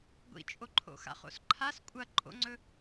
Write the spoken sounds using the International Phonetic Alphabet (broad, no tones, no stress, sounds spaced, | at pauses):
ɡʷ ḭ t͡ʃʼ o ǃʰ o̰ x a̰ χ o̰ s ǃʰ a s kʷʼ ɐ ǃʼ o̰ ŋ͡ǀ ɵ